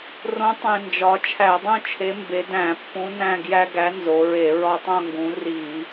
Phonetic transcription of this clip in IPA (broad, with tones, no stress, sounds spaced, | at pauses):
r õ˨˥ tˤ ẽ˨˩ n d͡ʒ ɒ˩˧ t͡ʃʰ æ˧˩˧ dˤ ũ˥˨ t͡ʃʰ e˨˥ m b e˩˧ d æ̃˧˩˧ pː ũ˨˥ n æ̃˥˨ ɡ j æ˦ ɡ æ˨˥ n z o˩˧ ɹ e˧˩˧ ɹ ɒ˦ tˤ õ˥˨ ŋ ɡ ũ˨˥ r i˧˩˧